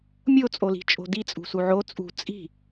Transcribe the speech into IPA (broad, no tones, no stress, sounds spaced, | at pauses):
mʲ o t͡sʼ o l i̤ t͡ʃʼ o̤ d i t͡sʼ ṳ s u ʕ o t͡sʼ ṳ t͡sʼ i̤